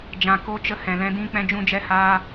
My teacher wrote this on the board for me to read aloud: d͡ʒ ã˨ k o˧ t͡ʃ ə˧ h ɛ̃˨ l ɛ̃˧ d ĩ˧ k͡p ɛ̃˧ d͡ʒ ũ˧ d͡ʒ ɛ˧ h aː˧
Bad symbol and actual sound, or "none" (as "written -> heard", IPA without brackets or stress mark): none